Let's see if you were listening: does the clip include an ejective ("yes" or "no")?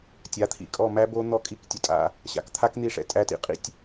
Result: yes